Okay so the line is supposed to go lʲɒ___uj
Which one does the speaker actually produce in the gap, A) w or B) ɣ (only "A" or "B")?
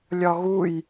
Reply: B